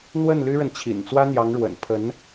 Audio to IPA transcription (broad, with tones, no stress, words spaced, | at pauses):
n̪wə˥˩n ly˥ɻə˨nt͡ɕʰḭ˨˩n t͡swä˥n̪jɑ˧˥ŋɻwə̰˨˩n pʰə˧˥n